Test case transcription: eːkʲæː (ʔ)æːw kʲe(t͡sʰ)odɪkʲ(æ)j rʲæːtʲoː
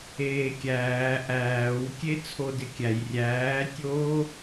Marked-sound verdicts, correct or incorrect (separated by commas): correct, correct, correct